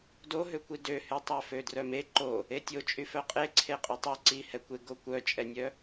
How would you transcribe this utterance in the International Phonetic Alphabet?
doɦøkʷi døhy tˤœfødrœme ǃo | etʲot͡ʃʼy fœqʼeǀʰe qʼytˤɛ ǀihɛkʷeɡo kʷœt͡ʃʼɛnʲœ

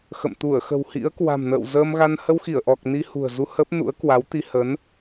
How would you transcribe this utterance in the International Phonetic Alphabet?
xə̰˧˨m t̪u˧˩ə̯xə̤˨˩whḭ˧˥ə̯kwa̤˨˩m nə̰ː˧˨wzəː˧mɣa˧n hə˧wxi˧˩ə̯ʔɔ˨˩k̚ ni˧ hṳ˨˩ə̯zu˧ hə˦˥p̚ nṵ˧˥ə̯kwa˨˦wt̪i˧ hə˨˦n

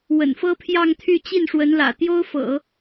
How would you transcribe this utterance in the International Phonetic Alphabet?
wə̰˨˩nfɤ˥pʰjɑ˥˧ŋt̪ʰy˥˧ t͡ɕi˥˩nʂwə˧˥nlä̰˨˩ t̪jo˥ʊ̯fɤ̰˨˩˦

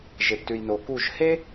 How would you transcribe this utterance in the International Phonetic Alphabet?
ʒe˨ptʉ˨jno˨ku˦˨ʒ he˦

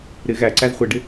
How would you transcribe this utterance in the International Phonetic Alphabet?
ɾɪ ɣæǀæz χʷɪɖɪ

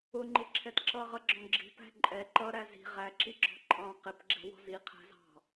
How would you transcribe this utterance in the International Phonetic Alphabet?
ʊŋ͡ǃɪǁʰɛt ǁʌʁʌɡ͡ǁɔ̃ ɡ͡ǁi̤pæ̤ ǃʼɛ ǃʌɾæ zi̤ ʁæǁiɡ͡ǁɔ̤ ǃʼɑ̃ qɪpɡ͡ǁɛ̤wɔ̤z iqʰæ̤zɑ̤

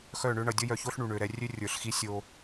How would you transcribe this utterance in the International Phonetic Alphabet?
xœ˦˨ɳø˦ɳʌ˨ dʲʌ˦jœ˧ço˦ɬɳu˨ ɳø˨ ɾɛ˧rʲø˦rʲə˞˨ɬxi˦ sʲo˧

